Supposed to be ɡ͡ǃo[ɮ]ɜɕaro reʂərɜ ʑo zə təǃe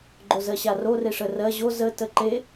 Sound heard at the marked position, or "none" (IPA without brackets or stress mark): z